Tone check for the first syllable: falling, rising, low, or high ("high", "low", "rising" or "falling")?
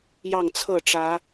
falling